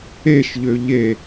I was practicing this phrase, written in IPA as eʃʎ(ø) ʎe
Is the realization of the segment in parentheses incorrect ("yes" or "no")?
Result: no